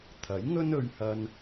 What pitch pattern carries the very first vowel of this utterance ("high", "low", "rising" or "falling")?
rising